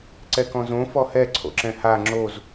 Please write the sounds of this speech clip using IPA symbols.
ǀ ɛ k ɔ̃ z õ f ɔ h ɛ ǀʰ o̰ ǁ ɛ̃ h a ŋ͡ǁ o z

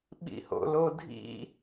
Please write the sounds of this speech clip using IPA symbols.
ɓ ḭ h o̰ l o dʱ ḭ

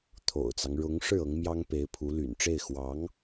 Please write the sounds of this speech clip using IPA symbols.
t̪ʰ o̰˨˩ ʊ̯ t͡s ɑ˦ ŋ ɻ ʊ˧˥ ŋ ʂ ɻ̩˥˩ ɤ˧˥ ŋ m j ɑ˥ ŋ p e˧˥ ɪ̯ pʰ u˧˥ l y̰˨˩ n ʈ͡ʂ e˥˩ ɪ̯ x w ɑ˧˥ ŋ

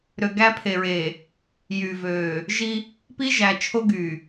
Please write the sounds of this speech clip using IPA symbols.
ɾ ø˨ ɡ æ˦ pʰ e˨ ɹ eː˨ | j y˨ v øː˨ | ʒ i˦ | p i˦ ʒ æ˨ t͡ʃʰ o˦ ɡ yː˨

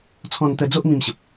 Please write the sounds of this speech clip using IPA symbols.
t͡sʰ ɔ̃˧ n t̪ ə˧ d͡z o˦ ʔ m ĩ˥˧ m ɕ ə˨ p̚

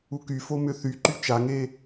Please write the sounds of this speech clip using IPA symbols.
u k y f o m ʏ θ y ǃ y t͡ʃ a ŋ e

